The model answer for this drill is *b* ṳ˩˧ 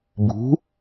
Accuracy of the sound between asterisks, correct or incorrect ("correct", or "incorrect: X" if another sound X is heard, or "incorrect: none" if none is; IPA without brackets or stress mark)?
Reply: correct